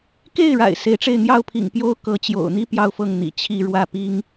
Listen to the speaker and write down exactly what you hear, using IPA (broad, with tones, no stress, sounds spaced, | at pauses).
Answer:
k e˥˩ ɪ̯ ɻ a̰˨˩ ɪ̯ s e˧˥ ɪ̯ ʈ͡ʂ e˥˧ ɪ̯ n̪ j ɑ˥˩ ʊ̯ pʰ ḭ˨˩ ŋ p j o˥ ʊ̯ k ɤ˧˥ t͡ɕ j o̰˨˩ ʊ̯ n̪ i˥ p j ɑ˥˧ ʊ̯ f ɤ˥˩ ŋ n̪ ḭ˨˩ t͡ɕʰ i˥˧ ɻ w ä˥˩ p i˥ ŋ